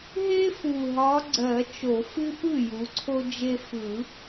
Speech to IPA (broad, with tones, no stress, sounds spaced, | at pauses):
ɦ e˦ f u˨˩ ɦ ɒ˨˦ ɡ͡ǀ ɜ˨˩˦ t͡ʃ o˨˩˦ f ɨ˦ p ɯ˥˩ j u˨˦ ǀʰ o˦ d͡ʒ e˦ f ɯ˨˩˦